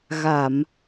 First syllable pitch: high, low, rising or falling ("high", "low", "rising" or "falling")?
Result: low